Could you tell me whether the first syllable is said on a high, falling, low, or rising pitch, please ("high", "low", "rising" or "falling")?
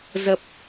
low